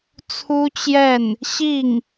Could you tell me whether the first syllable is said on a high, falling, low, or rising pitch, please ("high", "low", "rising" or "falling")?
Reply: high